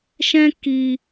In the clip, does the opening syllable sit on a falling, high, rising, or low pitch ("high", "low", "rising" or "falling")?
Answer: high